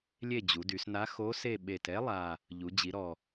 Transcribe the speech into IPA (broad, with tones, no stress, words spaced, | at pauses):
lʲe˦˨d͡ʑu˩˧dy˩˧sna˧˥ xo˧˥se˦˨ ɓe˨˩t ɛ˧˥lˠa˨˩ | ʎu˩˧d͡ʑi˩˧ɾɔ˨˩